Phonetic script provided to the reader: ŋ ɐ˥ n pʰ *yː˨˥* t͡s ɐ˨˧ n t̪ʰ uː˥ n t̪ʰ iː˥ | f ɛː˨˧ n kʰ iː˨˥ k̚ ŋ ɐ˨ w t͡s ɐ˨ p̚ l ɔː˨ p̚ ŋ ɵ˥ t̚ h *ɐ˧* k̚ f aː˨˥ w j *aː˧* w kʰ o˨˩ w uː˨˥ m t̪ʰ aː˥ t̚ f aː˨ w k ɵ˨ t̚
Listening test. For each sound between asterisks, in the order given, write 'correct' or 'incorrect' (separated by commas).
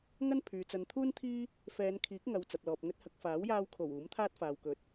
incorrect, correct, correct